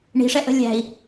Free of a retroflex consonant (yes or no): no